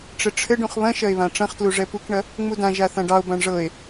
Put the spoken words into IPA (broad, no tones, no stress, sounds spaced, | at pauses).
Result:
ʈ͡ʂ ɘ ʈ͡ʂʰ ɘ ɖ ũ χ β ɐ̃ ʃ ɐ e̯ β ã ʈ͡ʂ ɐ̃ χ t l u ʐ ɛ p u k ɳ ɐ | ŋ͡m u d ã ʒ a θ ã ɖ ɑ o̯ b ã ɳ ʐ ɤ e̯